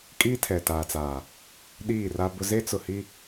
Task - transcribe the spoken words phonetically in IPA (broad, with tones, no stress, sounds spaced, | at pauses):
kʼ iː˦ tʰ ɛ˨ t aː˨ t͡s aː˨ | ɗ iː˦˨ r a˦ b ʊ˦ z e˦ t͡s ʊ˨ h i˦